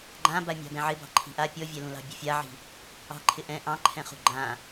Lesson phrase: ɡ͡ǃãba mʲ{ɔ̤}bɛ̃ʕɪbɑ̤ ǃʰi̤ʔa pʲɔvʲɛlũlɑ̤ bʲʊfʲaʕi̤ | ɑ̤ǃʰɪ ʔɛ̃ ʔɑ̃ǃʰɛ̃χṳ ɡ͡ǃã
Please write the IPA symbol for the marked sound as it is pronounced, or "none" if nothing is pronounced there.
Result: ɑ̤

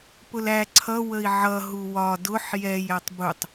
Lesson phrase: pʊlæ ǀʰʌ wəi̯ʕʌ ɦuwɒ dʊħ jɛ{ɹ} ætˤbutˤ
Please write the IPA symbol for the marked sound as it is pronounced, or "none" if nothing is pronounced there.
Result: j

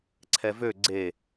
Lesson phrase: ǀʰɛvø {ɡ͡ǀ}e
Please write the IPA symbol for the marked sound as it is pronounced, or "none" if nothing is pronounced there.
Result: ɡ͡ǀ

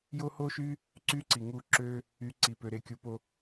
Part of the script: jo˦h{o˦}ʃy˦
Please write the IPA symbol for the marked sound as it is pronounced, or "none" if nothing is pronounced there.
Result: o˦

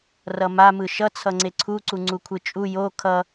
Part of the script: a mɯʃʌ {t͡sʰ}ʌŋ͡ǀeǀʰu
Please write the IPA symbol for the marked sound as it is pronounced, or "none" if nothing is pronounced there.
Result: t͡sʰ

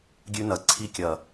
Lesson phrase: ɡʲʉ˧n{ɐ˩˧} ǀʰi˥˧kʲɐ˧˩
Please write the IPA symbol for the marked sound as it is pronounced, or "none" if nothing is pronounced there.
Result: ɐ˩˧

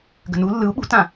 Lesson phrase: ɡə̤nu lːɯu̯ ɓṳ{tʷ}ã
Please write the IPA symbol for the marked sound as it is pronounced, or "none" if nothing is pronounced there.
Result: t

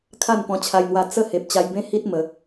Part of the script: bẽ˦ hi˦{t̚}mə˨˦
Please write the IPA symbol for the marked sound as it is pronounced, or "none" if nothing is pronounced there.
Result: t̚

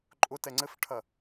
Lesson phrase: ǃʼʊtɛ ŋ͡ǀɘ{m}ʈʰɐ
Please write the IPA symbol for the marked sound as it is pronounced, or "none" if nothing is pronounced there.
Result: f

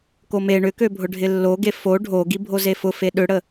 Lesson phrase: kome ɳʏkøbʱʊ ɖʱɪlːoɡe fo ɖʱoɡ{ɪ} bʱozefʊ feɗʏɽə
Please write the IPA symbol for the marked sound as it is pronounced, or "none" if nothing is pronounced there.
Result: i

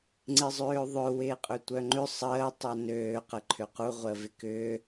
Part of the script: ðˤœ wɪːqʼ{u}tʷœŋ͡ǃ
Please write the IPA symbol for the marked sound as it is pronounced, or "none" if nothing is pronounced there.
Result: ø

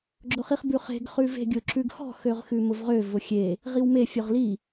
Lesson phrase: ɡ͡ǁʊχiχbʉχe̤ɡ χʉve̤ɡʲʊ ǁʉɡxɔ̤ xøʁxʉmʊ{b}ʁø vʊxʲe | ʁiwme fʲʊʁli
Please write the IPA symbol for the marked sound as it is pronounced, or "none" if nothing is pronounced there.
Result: v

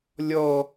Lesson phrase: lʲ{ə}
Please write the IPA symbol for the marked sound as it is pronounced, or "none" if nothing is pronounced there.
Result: ɔ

